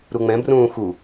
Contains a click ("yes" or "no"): no